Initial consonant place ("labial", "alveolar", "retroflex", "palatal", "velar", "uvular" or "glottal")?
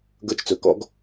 velar